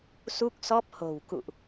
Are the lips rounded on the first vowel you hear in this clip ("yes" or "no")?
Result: yes